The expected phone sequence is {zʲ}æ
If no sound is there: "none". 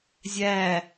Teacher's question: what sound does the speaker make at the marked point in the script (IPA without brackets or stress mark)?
zʲ